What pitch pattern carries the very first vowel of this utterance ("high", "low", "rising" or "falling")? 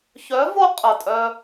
rising